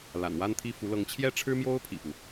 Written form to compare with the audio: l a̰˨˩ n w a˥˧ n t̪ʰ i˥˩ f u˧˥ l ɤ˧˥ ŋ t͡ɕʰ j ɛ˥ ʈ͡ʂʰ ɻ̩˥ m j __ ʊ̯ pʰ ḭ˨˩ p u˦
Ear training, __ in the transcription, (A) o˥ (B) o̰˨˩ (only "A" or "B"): A